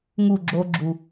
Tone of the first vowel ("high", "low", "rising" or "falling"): falling